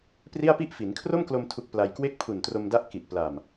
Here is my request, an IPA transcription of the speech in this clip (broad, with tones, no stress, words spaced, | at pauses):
pri˥˩a̯pi˥˩ʔ fi˩˦nkʰro˥˩mklo˧m tʰu˦˥k̚pla˧j kwe˥˩k̚pʰu˨˩ntro˧mda˦˥ʔ ki˨˩ʔpla˨˩m